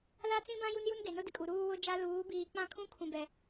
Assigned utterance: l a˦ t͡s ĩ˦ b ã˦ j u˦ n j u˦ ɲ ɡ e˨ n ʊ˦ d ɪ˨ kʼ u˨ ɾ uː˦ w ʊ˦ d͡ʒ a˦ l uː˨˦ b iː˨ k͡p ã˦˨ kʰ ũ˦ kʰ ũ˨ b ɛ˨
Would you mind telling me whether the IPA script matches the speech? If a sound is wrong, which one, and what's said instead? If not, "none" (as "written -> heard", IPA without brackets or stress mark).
ɲ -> n